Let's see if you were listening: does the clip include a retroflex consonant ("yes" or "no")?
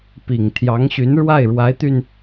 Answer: yes